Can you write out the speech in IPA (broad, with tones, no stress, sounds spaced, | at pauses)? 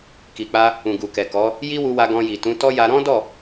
k i˨ k͡p a˧ | ũ˨ ɡ u˨ k ɛ˨ k ɔ˨˦ | j i˦ w u˧ w a˧ ɡ ɔ̃˧ j i˨ t ũ˨˦ t ɔ˦ j a˧ ɾ ɔ̃˦ d ɔ˦˨